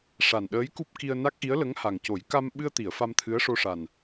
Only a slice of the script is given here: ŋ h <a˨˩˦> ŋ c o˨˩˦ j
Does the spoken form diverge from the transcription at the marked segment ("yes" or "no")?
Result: yes